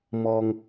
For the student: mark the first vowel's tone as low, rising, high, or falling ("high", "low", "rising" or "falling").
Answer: low